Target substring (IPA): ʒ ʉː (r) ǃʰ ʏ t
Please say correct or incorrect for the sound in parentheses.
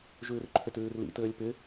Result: correct